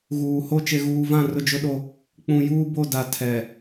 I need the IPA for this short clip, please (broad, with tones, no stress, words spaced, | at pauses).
ɣuː˨ho˦ t͡ʃe˨ɣuː˨vã˦˨ rʊ˦d͡ʒʊ˦ɗo˦ | k͡pũ˨ juː˦bo˦˨da˨ tʰɛ˨